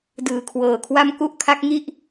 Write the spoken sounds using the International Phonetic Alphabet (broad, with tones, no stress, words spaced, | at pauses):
dɯː˨˩kʰwɤː˨˩kʰwa˥˩m ku˥˩ʔkʰa˦˥k̚ŋi˥˩ʔ